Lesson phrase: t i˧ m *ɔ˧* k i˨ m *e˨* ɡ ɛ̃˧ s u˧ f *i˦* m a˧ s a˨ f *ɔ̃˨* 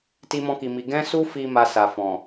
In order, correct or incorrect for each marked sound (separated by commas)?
incorrect, incorrect, correct, correct